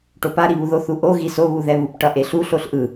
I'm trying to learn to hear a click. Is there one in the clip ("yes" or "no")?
no